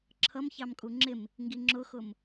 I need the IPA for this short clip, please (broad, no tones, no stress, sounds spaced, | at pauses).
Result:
ǁʰ ʌ m ç ɑ m kʼ u ŋ͡ǁ ɪ m | ŋ ɡ i ŋ͡ǁ ʊ x ʊ m